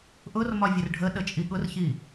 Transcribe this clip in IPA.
ʔ ʊ r m ɒ vʲ ə r ɖʱ ə ɗ ə t͡ʃʼ i ɠ ʊ r ç i

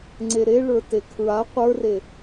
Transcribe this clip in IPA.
ŋ͡ǀ e ɾ e ɭ ə˞ t e kʰ ɹ a qʷ ə˞ r e

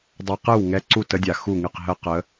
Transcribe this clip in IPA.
dˤ a˦˥ q ɨ˥˨ w ŋ ɛ˦˥ ǀ u˥˨ t ə˦˥ dʲ a˨ x u˥˨ ŋ ɨ˥˨ q ɦ ə˦˥ q ə˨˦

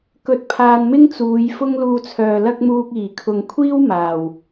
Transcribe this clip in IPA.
k ɵ˨ t̚ pʰ aː˨ n m ɪ˥ ŋ t͡s uː˨˧ j f ʊ˥ ŋ l uː˧ t͡sʰ œː˨ l ɐ˥ k̚ m uː˧ k̚ iː˨˩ kʰ ʊ˨ ŋ kʷʰ iː˥ w m aː˨˩ w

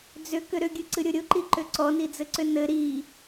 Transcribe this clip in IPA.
d͡z ʏ k ʏ ɾ ʏ ɡʲ ɨ ǀ ɨ ɾʲ ʊ ɾʲ ʊ ǃ i ǃ ʏ ǀ ɔ n i d͡z ɘ ǀ ʏ n ɘ ɾ i

